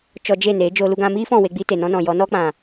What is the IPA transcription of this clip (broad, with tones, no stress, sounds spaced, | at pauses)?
t͡ʃ ɔ˧ d͡ʒ e˦˨ n eː˨˦ d͡ʒ oː˧ l u˧ ɡ ã˧ m iː˦ f ɔ̃˦˨ w e˧ ɡ͡b i˧ t e˨ n ɔ̃˧ n ɔ̃˨ j ɔ˨˦ n ɔ˦ k͡p ã˨